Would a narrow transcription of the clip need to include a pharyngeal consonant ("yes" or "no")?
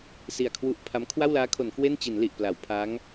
no